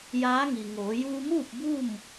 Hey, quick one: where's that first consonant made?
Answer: palate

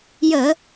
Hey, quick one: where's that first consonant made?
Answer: palate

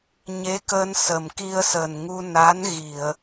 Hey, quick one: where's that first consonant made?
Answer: palate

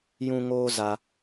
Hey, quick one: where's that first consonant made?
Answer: palate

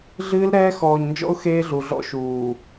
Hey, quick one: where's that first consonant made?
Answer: tongue tip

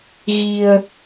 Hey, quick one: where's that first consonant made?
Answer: velum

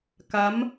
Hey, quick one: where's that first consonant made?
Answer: velum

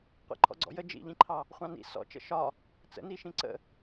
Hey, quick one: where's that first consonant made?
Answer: uvula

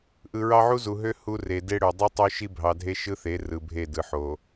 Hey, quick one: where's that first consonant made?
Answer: throat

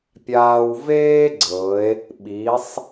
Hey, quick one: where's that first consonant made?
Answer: lips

